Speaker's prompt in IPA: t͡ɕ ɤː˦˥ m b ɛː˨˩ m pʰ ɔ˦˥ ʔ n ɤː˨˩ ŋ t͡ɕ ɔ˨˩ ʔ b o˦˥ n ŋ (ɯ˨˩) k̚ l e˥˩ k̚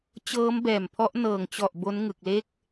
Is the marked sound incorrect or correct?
correct